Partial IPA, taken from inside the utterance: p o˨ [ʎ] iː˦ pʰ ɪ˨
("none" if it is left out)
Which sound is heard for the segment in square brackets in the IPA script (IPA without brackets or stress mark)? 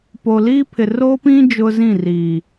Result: l